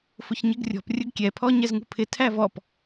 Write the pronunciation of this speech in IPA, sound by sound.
fʊçɲɪɡrʲɔ̤p rʲʊɡkʲɛpʰɔ ɲɛzŋṳpʰɪ tʰævɔp

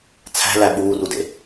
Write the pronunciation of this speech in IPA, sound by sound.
t͡sʰæ̤læ ɓuːrudḛ

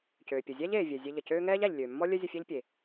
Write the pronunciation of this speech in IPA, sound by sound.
cøː˩pʲə˩ zʲæ˥ʎeː˩vʲɛ˩ zʲe˧ʎə˩cøː˥ ŋɛː˥ʎæ˩ʎlʲøː˩mːɔ˥ lʲœ˥zʲə˧fʲæ˥ʎ pʲe˩

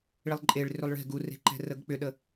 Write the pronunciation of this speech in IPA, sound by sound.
ɭilˠǃʼeɭ rʏlˠɭe̤ ɡure̤ǃɛ̤ rəɡk͡pʏɗə

